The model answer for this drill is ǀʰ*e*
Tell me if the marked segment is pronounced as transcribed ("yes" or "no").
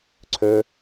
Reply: no